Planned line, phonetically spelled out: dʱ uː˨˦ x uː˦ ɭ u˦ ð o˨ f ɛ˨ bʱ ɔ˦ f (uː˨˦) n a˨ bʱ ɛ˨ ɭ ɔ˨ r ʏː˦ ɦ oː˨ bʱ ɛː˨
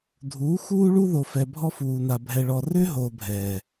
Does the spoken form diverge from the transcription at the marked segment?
yes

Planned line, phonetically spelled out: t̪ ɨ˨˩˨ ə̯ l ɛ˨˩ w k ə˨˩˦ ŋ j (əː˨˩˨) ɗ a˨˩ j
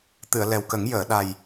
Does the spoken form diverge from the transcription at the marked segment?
no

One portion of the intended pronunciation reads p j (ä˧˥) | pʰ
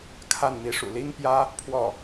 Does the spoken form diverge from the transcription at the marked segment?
yes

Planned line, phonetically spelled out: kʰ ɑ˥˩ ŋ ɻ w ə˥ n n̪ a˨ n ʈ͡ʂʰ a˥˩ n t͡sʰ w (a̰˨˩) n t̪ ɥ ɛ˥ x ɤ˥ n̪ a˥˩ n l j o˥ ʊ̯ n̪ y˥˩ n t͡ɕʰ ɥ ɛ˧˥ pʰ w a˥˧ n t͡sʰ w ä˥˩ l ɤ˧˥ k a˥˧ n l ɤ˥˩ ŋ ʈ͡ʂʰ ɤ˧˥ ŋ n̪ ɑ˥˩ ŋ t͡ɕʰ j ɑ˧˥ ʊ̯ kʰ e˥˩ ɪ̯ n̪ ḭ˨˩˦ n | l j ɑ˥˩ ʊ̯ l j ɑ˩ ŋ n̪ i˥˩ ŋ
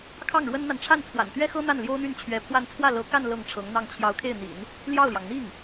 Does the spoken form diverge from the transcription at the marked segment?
no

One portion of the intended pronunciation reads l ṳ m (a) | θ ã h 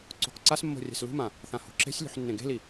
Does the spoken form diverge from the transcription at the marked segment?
yes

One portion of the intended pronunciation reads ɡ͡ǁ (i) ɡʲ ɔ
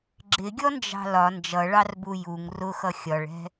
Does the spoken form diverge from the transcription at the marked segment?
yes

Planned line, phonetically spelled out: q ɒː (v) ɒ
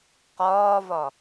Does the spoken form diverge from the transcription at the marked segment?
no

